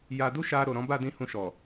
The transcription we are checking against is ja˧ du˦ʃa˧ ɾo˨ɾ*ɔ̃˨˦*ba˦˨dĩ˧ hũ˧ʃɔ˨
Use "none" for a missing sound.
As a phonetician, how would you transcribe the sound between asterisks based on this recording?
ɔ̃˨˦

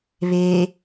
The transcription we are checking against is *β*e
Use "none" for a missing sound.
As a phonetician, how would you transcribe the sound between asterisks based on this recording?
β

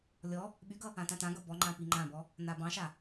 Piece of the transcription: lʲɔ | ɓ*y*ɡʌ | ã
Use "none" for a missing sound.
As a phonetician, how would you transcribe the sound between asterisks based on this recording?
y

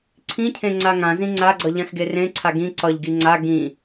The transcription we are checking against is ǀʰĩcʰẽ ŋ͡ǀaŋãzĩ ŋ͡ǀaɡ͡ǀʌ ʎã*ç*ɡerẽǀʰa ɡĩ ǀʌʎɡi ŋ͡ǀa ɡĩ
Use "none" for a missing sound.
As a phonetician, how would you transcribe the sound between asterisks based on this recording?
x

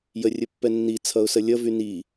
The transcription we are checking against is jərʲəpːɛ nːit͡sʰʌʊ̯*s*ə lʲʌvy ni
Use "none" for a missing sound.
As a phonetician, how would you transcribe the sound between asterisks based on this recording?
s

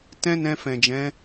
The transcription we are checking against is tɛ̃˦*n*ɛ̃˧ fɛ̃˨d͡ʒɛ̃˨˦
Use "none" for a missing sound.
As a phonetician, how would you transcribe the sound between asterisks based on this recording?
n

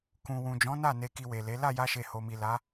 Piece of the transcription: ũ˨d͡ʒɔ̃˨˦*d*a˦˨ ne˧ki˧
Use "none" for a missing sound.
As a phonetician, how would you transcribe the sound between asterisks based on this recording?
n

